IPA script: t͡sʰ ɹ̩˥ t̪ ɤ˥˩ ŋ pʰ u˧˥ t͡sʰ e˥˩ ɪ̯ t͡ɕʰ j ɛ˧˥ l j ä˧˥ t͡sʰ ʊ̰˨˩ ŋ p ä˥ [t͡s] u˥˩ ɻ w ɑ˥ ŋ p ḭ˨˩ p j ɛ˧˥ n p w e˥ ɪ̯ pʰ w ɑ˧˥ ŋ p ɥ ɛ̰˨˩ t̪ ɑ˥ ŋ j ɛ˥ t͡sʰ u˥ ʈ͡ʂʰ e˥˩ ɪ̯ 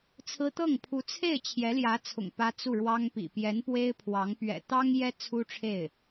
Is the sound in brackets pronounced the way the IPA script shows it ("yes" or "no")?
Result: yes